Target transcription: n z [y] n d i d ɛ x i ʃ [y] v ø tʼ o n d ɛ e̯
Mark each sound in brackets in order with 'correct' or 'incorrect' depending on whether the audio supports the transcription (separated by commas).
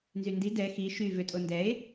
correct, correct